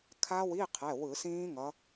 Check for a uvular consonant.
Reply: present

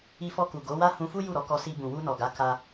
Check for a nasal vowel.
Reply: present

